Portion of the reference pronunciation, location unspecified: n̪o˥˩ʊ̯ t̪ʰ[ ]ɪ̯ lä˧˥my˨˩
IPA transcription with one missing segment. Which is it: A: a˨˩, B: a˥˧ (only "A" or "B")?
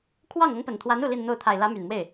A